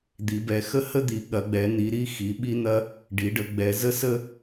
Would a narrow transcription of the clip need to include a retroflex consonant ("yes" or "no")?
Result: yes